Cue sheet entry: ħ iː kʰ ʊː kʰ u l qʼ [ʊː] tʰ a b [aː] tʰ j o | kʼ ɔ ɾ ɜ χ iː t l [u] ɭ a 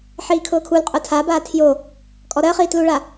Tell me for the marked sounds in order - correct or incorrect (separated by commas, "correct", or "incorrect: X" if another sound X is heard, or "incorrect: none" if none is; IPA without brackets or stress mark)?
incorrect: ʊ, correct, correct